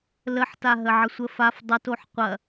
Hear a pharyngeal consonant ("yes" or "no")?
yes